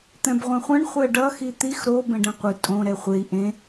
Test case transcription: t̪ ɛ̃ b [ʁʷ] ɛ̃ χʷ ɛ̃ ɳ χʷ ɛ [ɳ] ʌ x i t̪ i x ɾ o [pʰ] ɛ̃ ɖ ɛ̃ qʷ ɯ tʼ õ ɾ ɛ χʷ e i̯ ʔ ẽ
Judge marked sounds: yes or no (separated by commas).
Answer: yes, no, no